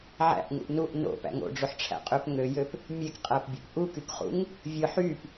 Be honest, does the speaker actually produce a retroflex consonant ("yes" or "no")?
yes